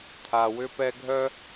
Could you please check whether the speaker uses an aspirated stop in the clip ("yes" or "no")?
yes